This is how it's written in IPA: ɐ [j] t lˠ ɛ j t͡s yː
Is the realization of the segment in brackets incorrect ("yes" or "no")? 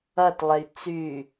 yes